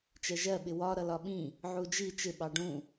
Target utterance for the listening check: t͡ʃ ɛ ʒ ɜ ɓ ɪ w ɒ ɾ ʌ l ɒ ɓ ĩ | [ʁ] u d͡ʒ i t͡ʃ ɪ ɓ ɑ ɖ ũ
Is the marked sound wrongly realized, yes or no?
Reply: yes